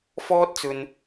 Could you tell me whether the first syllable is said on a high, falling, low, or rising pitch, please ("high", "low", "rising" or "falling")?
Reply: high